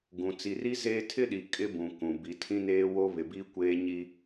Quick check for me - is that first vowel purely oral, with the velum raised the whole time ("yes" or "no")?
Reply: no